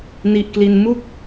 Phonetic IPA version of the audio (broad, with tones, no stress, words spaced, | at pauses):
ni˥˩ʔkli˥˩n mu˦˥k̚